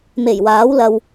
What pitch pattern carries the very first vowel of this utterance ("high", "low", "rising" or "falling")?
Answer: low